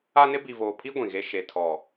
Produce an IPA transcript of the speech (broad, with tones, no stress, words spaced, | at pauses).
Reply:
a˦nɪ˦ bi˨voː˨pʰi˦ ɡʷĩ˨ɣe˦ ʃe˨tʰɔ˨